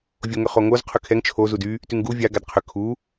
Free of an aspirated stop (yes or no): no